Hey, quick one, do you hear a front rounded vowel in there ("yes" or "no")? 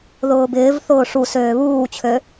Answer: yes